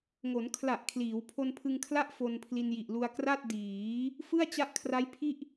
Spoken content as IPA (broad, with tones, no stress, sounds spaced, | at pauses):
ŋ o˩˦ n kʰ l a˨˩ ʔ kʰ l iː˩˦ w pʰ o˧ n pʰ ɯ˧ ŋ kʰ l a˥˩ ʔ f o˧ n pʰ l i˧ n j i˨˩ ʔ l u˧ a̯ k r a˥˩ t̚ d iː˩˦ | f ɯ˥˩ a̯ t͡ɕ a˦˥ ʔ kʰ r a˦˥ j pʰ i˥˩ ʔ